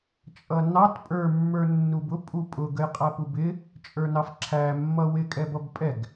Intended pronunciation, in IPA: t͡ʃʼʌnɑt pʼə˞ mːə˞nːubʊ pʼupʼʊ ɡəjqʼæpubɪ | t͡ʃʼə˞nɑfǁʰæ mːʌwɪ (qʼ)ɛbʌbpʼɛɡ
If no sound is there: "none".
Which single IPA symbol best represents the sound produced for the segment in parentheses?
kʼ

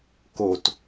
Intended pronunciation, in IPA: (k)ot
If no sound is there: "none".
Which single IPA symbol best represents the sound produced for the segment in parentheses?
k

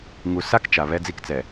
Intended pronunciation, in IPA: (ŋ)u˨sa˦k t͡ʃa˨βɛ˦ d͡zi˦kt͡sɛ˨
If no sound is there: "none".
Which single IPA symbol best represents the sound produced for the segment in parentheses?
ŋ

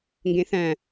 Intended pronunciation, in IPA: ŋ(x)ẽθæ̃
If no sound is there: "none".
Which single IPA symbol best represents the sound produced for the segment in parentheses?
ɡ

